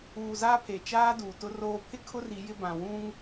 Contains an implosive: no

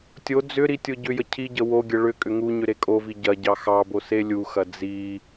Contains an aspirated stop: yes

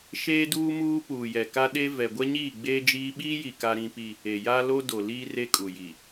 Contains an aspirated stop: no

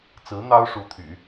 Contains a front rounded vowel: yes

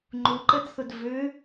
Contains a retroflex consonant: no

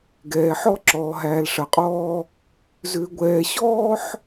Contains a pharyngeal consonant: yes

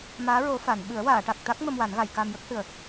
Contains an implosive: yes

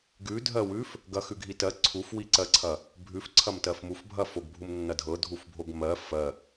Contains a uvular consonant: no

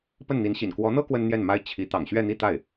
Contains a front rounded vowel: no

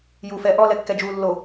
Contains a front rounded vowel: no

